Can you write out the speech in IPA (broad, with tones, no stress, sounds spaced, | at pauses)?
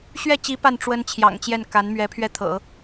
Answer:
ɕ ɥ ɛ˥˩ t͡ɕ i˧˥ p a˥˩ n ʈ͡ʂ w ə˥ n t͡ɕʰ j ɑ̰˨˩ ŋ t͡ɕ j ɛ˥˩ n k a˧˥ n m ɥ ɛ˧˥ pʰ ɥ ɛ˥˩ t̪ʰ ɤ̰˨˩˦